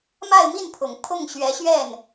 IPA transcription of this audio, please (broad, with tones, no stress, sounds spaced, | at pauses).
m a˥˧ ɪ̯ m i˥˩ n pʰ ʊ˨˩ ŋ pʰ ʊ˥˩ ŋ ɕ ɥ ɛ˧˥ ɕ ɥ ɛ˥˩ n